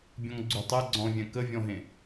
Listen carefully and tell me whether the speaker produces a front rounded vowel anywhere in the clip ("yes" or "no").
yes